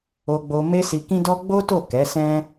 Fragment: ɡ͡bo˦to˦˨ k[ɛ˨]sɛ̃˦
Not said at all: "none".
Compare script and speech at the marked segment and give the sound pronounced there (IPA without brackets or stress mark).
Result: ɛ˨˦